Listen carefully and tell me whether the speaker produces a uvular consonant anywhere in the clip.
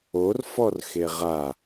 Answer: yes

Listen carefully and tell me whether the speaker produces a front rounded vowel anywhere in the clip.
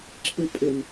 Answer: yes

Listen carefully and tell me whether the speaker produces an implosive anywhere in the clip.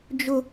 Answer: no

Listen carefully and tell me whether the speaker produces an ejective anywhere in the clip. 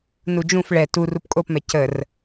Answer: yes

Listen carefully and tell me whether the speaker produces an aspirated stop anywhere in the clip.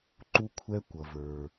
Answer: yes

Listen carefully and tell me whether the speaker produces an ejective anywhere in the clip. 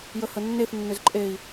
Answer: yes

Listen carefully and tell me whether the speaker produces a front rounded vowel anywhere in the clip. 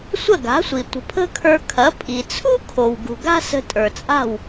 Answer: no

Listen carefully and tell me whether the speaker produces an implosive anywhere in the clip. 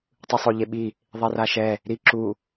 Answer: yes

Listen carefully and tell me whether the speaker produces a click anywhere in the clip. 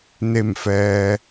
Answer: no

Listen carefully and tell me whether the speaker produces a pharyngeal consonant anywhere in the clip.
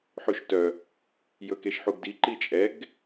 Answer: yes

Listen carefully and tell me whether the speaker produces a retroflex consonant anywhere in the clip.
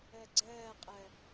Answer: no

